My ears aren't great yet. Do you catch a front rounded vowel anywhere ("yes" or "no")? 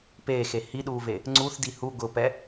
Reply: no